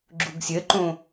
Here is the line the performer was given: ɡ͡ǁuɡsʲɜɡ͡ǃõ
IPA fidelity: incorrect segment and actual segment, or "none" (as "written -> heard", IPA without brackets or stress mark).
ɡ͡ǃ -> ǃ